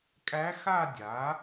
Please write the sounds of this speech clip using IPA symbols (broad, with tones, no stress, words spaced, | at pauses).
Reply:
kʼæ˧˥xa˥˧ dʲa˩˥